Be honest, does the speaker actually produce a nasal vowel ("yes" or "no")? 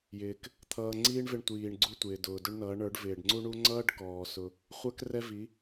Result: no